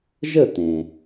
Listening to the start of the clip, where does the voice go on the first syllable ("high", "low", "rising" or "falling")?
falling